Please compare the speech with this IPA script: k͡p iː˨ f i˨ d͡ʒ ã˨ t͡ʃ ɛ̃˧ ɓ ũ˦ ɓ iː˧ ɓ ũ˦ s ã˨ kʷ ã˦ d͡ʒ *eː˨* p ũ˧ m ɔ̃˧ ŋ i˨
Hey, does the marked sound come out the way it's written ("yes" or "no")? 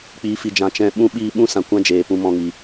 yes